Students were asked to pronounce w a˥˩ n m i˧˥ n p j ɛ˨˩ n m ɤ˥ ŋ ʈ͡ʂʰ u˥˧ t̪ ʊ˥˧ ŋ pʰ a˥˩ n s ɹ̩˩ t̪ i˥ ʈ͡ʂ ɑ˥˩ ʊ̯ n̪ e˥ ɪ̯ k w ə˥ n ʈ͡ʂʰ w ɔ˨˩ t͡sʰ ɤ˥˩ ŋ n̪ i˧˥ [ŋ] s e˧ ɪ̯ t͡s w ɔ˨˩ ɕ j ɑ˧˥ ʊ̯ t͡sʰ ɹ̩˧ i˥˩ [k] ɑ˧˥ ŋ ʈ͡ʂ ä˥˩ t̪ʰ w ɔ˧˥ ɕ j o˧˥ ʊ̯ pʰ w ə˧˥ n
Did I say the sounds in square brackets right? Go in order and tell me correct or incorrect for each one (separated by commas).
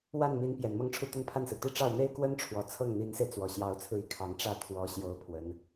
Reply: incorrect, incorrect